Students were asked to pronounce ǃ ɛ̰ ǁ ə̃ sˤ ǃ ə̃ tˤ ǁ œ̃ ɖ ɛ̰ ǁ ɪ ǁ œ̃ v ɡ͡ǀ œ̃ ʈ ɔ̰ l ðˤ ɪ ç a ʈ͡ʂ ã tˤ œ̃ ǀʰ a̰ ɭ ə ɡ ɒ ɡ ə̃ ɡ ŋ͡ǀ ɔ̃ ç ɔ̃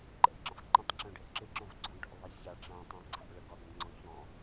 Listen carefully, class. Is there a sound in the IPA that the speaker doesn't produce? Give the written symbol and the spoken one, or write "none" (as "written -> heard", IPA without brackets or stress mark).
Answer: none